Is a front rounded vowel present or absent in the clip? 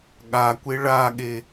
absent